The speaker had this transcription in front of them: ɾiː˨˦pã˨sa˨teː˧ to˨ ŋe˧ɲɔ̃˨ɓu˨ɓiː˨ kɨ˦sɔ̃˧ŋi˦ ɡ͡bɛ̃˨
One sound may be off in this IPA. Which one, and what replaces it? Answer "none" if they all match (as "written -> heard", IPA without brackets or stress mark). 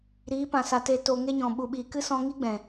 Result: none